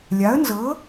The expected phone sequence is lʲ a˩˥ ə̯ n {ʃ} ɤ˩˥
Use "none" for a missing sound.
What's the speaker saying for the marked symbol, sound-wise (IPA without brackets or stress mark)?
z